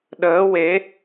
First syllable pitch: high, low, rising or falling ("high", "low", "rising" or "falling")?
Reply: rising